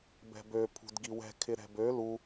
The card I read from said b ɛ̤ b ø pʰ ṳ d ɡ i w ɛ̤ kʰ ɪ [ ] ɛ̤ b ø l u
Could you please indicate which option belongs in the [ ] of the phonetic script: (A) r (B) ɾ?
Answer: B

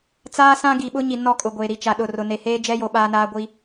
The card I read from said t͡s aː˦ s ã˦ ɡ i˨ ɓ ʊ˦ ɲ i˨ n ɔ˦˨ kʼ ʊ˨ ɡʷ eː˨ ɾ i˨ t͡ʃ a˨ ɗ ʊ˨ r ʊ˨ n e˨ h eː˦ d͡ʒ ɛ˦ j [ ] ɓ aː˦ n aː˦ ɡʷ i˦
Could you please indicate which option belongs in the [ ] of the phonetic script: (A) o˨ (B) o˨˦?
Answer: A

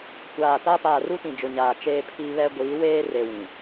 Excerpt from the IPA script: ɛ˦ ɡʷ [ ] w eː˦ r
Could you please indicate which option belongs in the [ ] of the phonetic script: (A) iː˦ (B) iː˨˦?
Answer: B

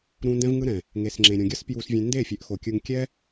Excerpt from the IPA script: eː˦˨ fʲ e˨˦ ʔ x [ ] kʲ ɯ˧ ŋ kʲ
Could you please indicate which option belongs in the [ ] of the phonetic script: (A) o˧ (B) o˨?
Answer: B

